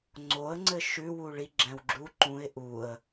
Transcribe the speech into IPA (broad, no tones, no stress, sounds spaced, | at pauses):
ŋ͡ǀ o ə̯ ŋ͡ǀ ɘ ʃ ʉ w u ɭ i ɡ͡ǁ ɛ̃ w ɡ͡ǁ u ǃ ũ ɪ̯ ʔ u ə̯